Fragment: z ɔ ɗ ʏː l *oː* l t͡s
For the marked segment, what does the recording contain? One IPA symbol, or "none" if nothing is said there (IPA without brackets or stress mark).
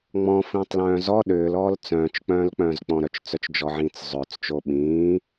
ɔː